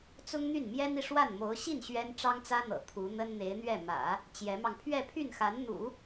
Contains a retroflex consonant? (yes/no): yes